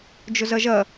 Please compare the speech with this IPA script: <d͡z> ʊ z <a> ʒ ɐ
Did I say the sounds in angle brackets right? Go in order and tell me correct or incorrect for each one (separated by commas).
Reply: incorrect, incorrect